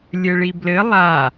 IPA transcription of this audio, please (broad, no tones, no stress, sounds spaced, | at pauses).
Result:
lʲ ɘ ɭ i b l ɘ lˠ a